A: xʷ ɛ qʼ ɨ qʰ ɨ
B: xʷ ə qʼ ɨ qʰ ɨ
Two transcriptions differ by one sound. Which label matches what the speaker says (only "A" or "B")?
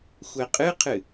A